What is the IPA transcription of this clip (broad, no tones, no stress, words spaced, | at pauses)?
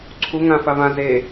ǀʰu ŋã favã ze